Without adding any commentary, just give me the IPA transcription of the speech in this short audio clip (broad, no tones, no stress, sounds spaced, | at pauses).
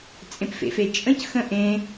t͡sʼ ẽ p f ḛ f e t͡ʃʼ ə̃ c x ə̃ ʔ ẽ